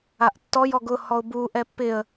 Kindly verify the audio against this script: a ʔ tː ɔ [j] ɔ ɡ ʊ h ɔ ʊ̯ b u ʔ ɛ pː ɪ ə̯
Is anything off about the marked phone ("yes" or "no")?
no